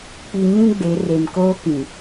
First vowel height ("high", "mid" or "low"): high